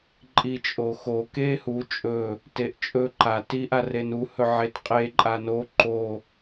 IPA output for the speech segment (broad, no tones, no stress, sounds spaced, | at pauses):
ǃʼ i t͡ʃʼ o x o k e h u t͡ʃʼ ɵ | t e ʔ t͡ʃʼ ɵ ǃ a t i ʔ a r e n u h ɵ ʕ e t qʼ e ǃʼ a n o ǃ o